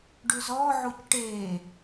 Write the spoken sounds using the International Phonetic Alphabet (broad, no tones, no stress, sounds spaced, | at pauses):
ɖ ʉ z ɔ ʕ u c ʈ e